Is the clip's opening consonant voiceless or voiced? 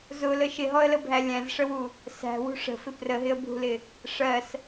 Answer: voiced